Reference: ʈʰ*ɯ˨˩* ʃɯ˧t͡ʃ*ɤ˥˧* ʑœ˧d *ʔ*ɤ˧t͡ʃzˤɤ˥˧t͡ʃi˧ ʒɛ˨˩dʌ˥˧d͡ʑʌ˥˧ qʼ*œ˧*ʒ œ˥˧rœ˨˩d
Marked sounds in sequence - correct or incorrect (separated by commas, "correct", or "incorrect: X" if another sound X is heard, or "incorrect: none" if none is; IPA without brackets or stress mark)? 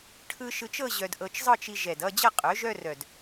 incorrect: ɯ˧, correct, correct, incorrect: œ˩˥